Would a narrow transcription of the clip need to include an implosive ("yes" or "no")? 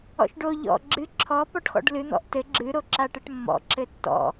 no